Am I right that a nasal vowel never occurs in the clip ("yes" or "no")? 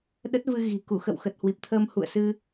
yes